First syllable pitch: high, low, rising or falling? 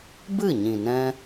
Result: falling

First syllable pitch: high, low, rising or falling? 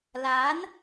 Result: rising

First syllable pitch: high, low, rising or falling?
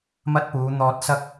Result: high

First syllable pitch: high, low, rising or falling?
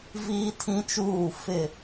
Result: high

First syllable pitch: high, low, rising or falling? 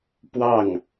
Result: falling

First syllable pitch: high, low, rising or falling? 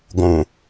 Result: low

